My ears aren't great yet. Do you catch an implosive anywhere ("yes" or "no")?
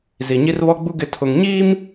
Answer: no